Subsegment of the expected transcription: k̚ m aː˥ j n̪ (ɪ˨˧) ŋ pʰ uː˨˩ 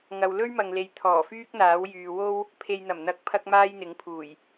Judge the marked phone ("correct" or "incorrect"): incorrect